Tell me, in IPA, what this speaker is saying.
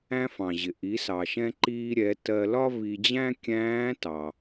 æ̃˧ f ɑ̃˩ ʑ ɪ˩ ʔ i˩˧ s ɑ˩ ʃ ɛ̃˧ ǃ iː˧ ɾʲ ɛ˩˧ t ɜ˧ l ɒ˥ v i˧ d͡ʑ æ̃˥ kʲ æ̃ː˧˥ t ɑ˩

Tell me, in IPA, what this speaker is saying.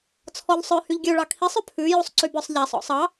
t͡sʰ ɔ ʎ sˤ œ h y ʎ ɡʲ ø ɭ ɑ kʰ i sˤ ø pʰ ʉ j u sˤ ǀ y b œ sˤ ʎ æ sˤ ɔ̰ sˤ ɑ

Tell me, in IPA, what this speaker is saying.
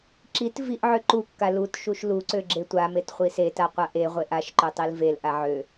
ǁ i t v i ʔ ʕ ø ǃ u kː a l u t ʃ u ʃ l u ǀ ø ɡ͡ǁ e tʷ a m e t χʷ i s e t a qʷ a ʔ e ʁʷ e ʔ a ʃ ǃ ø tˤ i l v e l ʔ a ʕ ø

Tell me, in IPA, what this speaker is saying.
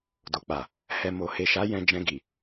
d o˨ k͡p a˨ | h ɛ˨ m o˨ h e˨ ʃ a˨˦ j ɛ̃˧ d͡ʒ ɛ̃˧ ɡ i˨

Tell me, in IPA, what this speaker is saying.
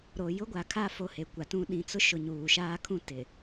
ɾ o˨ j ʊ˦ ɡʷ a˨ kʰ a˦ f o˦˨ h e˨ kʷ a˨ t ũ˦ ɗ ĩ˨ t͡s ʊ˦ ʃ ʊ˨ ɲ uː˨ ʃ aː˦ kʰ ũ˦ t ɪ˨

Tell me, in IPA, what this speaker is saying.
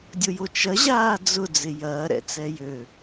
dʲ ʊ j o t͡ʃ ɐ ʑ aː d͡z ʊ d͡z ɪ j ɐː ɾ ɛ̰ t͡s ɛ j ø

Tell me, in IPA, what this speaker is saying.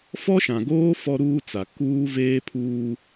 f ɔ˦ ʃ ã˨ ɡ oː˦ f ɔ˦ ɾ uː˦ t͡s a˨ k uː˦ v eː˦ pʰ uː˦

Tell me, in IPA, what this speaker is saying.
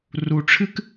r u˩ ʈ͡ʂʰ ɨ˧ k

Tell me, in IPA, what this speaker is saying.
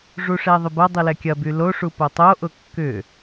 ʐ u ʂ ɛ ðˤ ʏ b ɐ dˤ i l ɛ kʲ ɐ b y l o ʂ u p o tˤ o ʔ ʊ kː ʏ

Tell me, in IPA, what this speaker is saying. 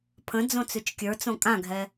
pʰ ə̃ d͡z õ t͡s ʉ t͡ʃ kʲ ə˞ t͡s õ kʼ ã ɡʱ ɛ

